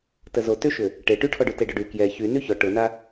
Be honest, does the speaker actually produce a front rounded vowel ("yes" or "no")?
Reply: yes